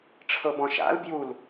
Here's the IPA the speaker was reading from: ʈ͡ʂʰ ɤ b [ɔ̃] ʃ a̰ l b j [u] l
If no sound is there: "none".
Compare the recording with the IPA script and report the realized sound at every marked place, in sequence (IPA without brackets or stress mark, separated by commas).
ɔ̃, u